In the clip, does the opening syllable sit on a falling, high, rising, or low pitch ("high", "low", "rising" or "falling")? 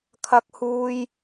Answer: high